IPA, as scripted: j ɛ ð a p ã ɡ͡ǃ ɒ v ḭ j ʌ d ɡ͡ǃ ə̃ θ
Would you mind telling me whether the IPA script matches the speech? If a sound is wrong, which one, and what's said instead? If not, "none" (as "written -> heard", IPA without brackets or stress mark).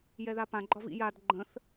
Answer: ʌ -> a